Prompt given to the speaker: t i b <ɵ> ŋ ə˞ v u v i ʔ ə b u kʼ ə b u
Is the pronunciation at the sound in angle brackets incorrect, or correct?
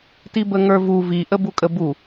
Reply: incorrect